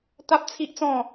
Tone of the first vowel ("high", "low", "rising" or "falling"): high